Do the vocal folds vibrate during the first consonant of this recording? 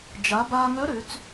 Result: yes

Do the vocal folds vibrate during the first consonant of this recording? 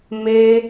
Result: yes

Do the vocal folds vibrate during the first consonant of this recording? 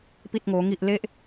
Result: no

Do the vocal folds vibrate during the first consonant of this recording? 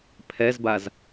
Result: no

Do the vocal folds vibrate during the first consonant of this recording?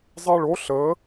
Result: yes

